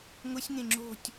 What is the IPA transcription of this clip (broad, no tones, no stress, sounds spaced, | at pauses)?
ŋ ʊ sʲ ŋ ẽ ŋ͡ǁ o̤ tʲ